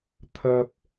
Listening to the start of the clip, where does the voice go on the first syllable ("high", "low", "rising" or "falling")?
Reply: high